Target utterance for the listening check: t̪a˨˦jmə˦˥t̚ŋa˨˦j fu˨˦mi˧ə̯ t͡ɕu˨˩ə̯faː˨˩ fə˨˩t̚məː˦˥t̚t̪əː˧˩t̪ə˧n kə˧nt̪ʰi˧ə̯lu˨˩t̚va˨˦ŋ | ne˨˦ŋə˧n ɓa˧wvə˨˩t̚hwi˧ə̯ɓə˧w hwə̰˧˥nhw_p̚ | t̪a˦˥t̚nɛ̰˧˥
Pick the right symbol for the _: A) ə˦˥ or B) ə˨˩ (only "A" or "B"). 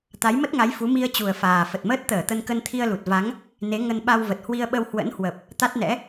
B